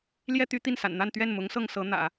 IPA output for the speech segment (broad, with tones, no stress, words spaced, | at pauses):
ljɛ˥t̪y˧˥ t̪i˥˩nsa̰˨˩nn̪a˥˧n t̪ɥɛ˥˩nmʊ˧˥ŋsɤ˥˩ŋ sɤ˧˥n̪ä̰˨˩˦